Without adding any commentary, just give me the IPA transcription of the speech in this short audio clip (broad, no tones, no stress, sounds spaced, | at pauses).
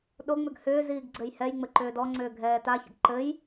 ɗ o ŋ͡m ʏ ɡ h ʏː z iː ɡ ɡ͡ǀ ɘ j h ɛ j ŋ͡m ɘ ǃ ʏː d ɔ ŋ͡ǀ ʏː ɡʱ ɛː t a ç ə̰ ɡ ǃ ɘ j